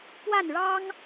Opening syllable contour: falling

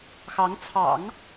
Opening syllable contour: rising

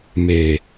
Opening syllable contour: low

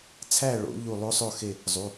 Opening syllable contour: falling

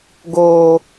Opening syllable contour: low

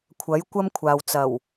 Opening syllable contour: rising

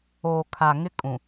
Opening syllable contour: low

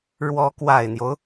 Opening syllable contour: rising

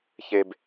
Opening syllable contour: low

